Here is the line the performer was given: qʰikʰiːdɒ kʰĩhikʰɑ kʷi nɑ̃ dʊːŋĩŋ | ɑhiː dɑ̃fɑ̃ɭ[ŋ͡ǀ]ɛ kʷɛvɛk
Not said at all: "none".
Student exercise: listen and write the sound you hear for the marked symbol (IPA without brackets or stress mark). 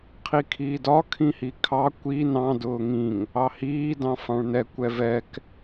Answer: n